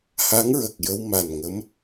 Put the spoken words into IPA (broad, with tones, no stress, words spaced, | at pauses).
ha˧˥ŋɹə˨˩k̚jə˧w ma˨˩n ŋə˧˥m